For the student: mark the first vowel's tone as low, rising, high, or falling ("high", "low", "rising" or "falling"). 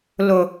low